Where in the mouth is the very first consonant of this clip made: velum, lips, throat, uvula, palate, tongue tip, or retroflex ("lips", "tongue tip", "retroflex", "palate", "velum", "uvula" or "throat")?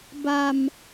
lips